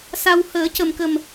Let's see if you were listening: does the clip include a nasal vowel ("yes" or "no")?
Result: no